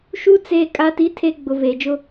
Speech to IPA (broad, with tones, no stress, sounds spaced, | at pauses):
ʃ u˦ t͡s eː˦ kʼ a˦ t i˦ tʰ e˦ ɡ͡b ʊ˨ v eː˨ d͡ʒ ʊ˦